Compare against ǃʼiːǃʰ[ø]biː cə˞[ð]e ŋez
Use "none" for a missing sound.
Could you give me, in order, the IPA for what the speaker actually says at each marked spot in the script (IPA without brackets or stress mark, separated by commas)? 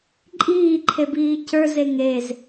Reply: e, z